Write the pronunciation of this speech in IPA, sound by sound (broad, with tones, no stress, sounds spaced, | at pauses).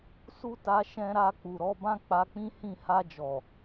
s u˦ t a˧ ʃ ɛ̃˧ ɾ a˧ k͡p u˨ ɾ ɔ˨˦ b ã˦ k͡p a˧ k͡p ĩ˦ h ĩ˦˨ h a˧ d͡ʒ ɔ˨